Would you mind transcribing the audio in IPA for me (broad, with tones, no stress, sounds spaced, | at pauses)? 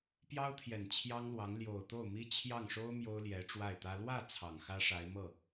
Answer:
p j ɑ˥ ʊ̯ t̪ʰ j ɛ˨˩ n t͡ɕʰ j ɑ˥ ŋ l w ɑ˧˥ ŋ l j o˨˩ ʊ̯ t̪ o˥˩ ʊ̯ m i˥ t͡ɕʰ j ɑ˥˩ ŋ ʂ o˥ ʊ̯ m j o˥ ʊ̯ l j ɛ˧˥ ʈ͡ʂ w a˥˩ ɪ̯ t̪ ä˥ l w ä˥˩ t͡sʰ ɑ˨˩ ŋ x ä˥ ʂ a˧˥ ɪ̯ m ɤ˥˩